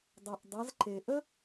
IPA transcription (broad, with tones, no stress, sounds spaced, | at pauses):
dˤ ʌ˩ ʔ dˤ ʌ˩˧ z ǃ e˩ ʔ ə˥